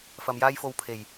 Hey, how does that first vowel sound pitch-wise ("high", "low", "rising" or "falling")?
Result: low